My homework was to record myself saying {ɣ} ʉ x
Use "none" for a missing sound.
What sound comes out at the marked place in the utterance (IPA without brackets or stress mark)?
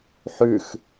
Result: ħ